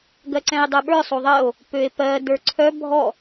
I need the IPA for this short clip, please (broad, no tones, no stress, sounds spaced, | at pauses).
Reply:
ɡ ɜ ǀ ɛ̃ e̯ dˤ ɜ ɓ ə˞ sˤ o ðˤ ɜ o̯ | p ø e̯ p ɜ d ə˞ ǀʰ œ bʱ ɔ